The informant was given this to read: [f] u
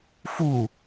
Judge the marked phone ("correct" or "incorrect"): correct